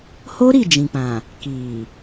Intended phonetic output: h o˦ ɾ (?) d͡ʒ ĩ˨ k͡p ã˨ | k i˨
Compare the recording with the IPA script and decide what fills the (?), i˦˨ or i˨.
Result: i˦˨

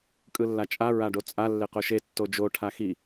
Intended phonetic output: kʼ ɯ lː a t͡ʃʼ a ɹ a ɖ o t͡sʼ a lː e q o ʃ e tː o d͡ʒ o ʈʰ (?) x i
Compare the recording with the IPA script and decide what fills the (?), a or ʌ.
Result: a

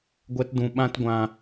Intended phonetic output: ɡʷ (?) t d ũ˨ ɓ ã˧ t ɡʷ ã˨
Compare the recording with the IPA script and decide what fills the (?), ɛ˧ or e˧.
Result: ɛ˧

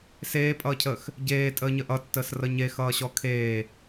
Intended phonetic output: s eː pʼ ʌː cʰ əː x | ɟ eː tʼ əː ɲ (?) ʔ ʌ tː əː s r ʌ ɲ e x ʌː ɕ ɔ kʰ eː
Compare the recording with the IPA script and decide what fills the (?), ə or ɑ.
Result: ə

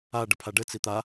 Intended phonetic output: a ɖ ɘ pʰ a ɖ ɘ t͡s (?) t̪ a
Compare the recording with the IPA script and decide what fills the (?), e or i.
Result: i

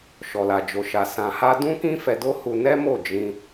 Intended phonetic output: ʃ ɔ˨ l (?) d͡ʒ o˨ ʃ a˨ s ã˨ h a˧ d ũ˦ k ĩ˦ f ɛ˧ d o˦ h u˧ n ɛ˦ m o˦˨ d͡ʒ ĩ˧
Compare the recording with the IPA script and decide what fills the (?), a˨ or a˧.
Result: a˨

